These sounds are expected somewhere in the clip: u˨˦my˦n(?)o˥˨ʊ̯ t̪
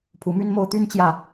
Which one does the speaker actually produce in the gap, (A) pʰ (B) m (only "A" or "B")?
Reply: B